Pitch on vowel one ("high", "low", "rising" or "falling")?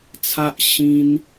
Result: high